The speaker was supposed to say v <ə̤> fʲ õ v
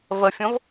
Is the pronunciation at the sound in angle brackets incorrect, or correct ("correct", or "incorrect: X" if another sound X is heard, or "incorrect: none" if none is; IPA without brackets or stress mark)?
incorrect: ə